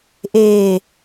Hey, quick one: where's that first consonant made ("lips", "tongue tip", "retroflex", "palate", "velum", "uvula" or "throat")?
throat